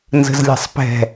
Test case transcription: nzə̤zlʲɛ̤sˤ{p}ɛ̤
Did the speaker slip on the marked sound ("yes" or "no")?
no